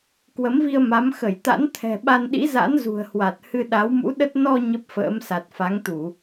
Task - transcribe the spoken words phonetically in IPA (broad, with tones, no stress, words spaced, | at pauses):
kwə˨˦mvi˧ə̯ ma˨˦m xə˧˩jt̪a̰˧˥n t̪ʰɛ̤˨˩ɓa˧nɗḭ˧˥za̰˧˥n zṳ˨˩ə̯hwa˨˩t̚ hɨ˧ɗa˨˦wmṵ˧˥ɗə˦˥t̚ nɔ˧ ɲə˦˥p̚fə̰ː˧˥msa˨˩t̚ fa˨˦ŋt̪u˧˩˨